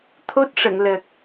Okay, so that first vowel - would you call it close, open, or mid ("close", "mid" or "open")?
mid